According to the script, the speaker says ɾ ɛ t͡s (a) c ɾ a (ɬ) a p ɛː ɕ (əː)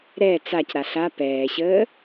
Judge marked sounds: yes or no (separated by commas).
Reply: yes, yes, yes